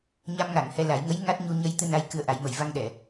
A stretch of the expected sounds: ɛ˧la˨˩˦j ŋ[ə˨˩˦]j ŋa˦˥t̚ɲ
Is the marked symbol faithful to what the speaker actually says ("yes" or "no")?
no